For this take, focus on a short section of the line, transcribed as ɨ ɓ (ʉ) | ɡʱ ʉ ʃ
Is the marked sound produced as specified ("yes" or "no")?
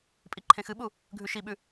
no